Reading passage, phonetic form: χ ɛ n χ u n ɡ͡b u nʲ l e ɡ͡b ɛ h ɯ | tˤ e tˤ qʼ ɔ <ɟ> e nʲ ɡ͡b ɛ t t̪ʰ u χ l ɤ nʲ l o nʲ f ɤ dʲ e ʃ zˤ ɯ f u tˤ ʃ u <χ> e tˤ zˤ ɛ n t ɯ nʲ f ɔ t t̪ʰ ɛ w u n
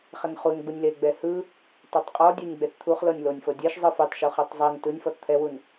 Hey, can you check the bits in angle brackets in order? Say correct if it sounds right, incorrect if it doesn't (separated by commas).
incorrect, correct